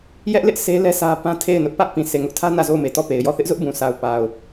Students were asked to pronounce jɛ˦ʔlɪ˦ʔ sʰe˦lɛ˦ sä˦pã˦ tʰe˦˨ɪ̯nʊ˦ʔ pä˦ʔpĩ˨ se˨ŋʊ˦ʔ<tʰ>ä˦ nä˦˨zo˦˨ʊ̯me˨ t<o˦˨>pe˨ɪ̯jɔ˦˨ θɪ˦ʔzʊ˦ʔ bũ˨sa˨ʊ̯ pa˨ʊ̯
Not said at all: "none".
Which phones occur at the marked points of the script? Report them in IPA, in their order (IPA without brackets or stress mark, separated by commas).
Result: tʰ, ɔ˦˨